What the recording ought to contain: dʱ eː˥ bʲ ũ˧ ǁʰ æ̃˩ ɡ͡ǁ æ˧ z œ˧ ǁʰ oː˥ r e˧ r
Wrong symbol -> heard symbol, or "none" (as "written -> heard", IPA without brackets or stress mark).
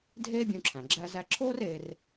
œ˧ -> æ˧